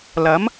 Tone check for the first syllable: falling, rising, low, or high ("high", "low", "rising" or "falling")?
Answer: rising